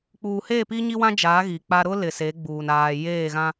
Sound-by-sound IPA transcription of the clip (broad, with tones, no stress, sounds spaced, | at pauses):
k͡p uː˨ h eː˦˨ p i˦ ɲ i˦ w ã˦ d͡ʒ aː˨˦ ɣ i˨ k͡p a˦ ɾ ʊ˦ l ɪ˨ s e˨˦ ɡ͡b uː˨ n aː˨ j eː˦˨ ɣ ã˦